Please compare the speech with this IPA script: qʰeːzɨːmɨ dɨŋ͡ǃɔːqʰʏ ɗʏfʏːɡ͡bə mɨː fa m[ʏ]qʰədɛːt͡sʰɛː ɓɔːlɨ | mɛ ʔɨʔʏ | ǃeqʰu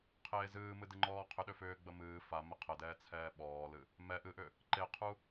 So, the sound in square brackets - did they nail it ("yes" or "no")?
no